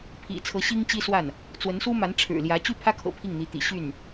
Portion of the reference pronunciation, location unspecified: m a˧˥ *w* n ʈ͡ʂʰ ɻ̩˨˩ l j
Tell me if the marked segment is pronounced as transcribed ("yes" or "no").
no